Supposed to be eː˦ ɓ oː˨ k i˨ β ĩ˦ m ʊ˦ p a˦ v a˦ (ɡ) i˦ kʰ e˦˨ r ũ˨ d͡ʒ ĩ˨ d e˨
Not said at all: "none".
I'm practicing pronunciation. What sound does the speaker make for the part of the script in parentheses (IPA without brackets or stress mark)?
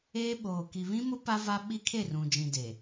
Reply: ɓ